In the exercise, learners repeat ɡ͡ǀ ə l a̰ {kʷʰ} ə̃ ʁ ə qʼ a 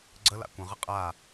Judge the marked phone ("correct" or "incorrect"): incorrect